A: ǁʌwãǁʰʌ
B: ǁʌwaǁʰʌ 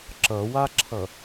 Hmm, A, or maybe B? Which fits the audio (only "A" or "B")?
B